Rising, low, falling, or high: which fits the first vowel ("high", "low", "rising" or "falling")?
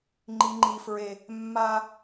high